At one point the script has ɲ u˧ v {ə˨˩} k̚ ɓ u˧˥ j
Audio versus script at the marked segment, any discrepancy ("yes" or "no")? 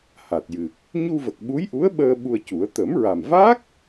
no